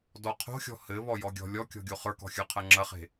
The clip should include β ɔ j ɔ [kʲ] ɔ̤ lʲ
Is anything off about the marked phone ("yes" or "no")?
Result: yes